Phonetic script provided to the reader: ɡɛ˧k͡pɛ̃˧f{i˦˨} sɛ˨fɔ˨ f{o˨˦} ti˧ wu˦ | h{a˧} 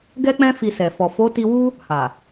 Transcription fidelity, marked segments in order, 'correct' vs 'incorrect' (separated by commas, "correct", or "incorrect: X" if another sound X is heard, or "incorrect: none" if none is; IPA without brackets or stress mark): incorrect: i˨, correct, incorrect: a˨